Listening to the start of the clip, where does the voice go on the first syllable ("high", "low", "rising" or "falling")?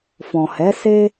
low